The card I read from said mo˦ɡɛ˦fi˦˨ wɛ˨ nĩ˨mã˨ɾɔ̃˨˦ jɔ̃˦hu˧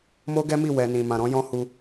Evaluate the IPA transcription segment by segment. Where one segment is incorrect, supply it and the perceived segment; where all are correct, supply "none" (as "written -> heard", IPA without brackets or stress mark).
f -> m